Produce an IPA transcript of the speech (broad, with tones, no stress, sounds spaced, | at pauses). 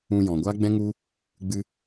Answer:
ũ˧ j ɔ̃˨ ɡʷ a˦ ɡ͡b ɛ̃˦ ŋ u˦ | ɡ͡b ɨ˧